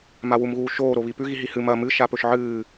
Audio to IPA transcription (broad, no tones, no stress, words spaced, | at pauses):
mawumɣuːʃoː ɾoβipʉ ɣiɦihɨ mɐ mɨ ʃapɵʃʕɨː